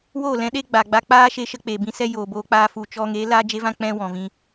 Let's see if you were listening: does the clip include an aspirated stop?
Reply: no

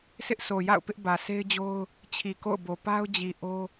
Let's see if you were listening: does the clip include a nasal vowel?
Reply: no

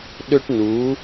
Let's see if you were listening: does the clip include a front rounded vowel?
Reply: yes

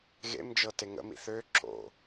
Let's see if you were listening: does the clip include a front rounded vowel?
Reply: yes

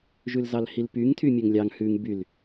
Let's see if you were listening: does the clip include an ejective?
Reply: no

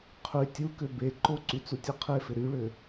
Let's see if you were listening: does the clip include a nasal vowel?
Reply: no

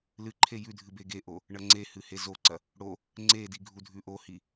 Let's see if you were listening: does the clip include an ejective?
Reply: no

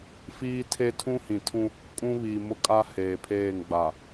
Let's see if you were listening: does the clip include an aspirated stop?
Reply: yes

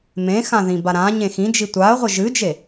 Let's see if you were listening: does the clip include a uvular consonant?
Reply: yes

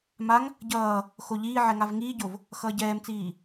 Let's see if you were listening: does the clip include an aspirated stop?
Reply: no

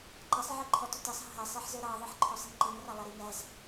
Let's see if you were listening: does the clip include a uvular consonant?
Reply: no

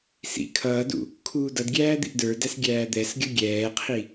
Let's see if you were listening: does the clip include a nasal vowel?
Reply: no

